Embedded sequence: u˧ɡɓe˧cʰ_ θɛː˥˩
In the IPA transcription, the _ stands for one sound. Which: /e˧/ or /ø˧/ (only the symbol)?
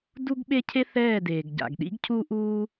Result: e˧